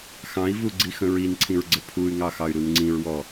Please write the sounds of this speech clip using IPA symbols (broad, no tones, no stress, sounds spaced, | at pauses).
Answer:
x ɑ̃ i̯ v u ɡ͡ǀ i x ə̃ ɹ i n ǀʰ ĩ ɹ ɡ͡ǀ ə pʰ u y̯ ŋ ɑ x ɑ y̯ ɾ u n ŋ͡ǀ ĩ ɹ w ɔ